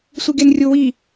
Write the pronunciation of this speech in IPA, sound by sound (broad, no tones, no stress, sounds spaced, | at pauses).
sʷ i ɡ e n rʲ o w i